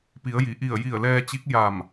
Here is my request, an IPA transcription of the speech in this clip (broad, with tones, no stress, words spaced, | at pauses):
pi˩˧ə̯ji˩ʔi˧˩ə̯ ji˧˩ə̯lɛː˧t͡ɕi˧˥k̚ ja˧˩m